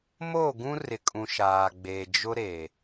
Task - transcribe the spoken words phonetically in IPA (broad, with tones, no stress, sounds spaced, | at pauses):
m oː˦˨ ɡ ũ˦ r ɪ˨ kʼ ũ˨ ʃ aː˨ ɡ͡b eː˨ d͡ʒ ʊ˦ ɾ e˨